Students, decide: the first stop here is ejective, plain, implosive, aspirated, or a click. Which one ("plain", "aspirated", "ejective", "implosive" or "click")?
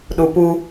implosive